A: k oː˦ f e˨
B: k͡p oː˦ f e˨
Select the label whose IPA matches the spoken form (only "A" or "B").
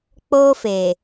B